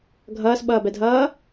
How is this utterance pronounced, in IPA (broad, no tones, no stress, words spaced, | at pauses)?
ɡʱʌːsɓʌːbɛdʱʌː